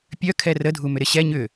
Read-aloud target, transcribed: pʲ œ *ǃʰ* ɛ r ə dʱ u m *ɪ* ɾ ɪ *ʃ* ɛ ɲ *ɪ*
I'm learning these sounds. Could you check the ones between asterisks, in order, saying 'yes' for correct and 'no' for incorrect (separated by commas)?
no, no, no, no